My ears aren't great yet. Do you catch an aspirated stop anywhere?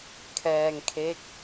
yes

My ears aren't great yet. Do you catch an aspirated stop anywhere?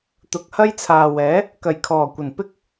yes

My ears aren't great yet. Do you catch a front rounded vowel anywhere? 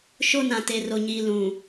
no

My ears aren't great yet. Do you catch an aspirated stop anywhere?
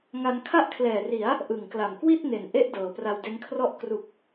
yes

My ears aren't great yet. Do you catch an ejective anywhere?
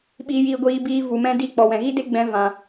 no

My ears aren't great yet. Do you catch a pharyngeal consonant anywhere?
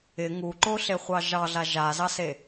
no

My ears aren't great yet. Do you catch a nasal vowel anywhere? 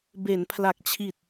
no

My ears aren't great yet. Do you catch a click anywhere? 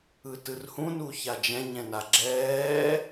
yes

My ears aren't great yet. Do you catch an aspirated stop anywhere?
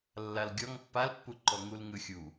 no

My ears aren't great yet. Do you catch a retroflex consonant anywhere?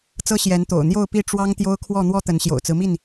yes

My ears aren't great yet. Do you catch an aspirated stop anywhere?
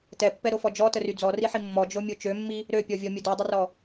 no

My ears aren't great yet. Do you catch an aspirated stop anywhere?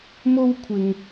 yes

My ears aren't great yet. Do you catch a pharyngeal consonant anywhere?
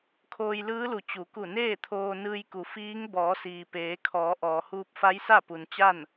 no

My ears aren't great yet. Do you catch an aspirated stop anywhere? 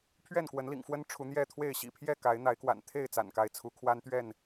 yes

